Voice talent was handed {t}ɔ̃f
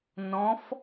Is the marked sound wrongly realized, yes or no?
yes